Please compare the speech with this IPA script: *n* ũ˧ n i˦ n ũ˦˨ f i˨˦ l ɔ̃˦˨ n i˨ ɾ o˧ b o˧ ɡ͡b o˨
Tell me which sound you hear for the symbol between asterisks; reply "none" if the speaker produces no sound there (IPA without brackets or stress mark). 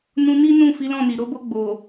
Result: n